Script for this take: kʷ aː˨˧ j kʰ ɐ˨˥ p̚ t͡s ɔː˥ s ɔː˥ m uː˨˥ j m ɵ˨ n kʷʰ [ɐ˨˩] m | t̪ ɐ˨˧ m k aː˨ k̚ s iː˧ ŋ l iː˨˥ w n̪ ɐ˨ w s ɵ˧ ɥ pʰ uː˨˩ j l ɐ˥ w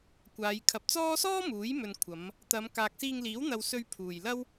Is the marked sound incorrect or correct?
incorrect